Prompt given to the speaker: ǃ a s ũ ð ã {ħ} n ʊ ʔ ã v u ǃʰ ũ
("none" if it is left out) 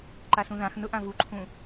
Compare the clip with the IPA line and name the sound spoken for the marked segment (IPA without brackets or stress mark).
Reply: x